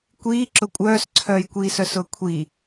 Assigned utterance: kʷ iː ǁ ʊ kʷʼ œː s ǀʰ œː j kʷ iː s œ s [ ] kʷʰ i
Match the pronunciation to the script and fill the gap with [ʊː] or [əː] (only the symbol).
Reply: ʊː